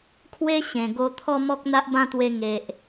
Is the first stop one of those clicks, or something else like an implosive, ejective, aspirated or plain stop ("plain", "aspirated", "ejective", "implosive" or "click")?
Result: aspirated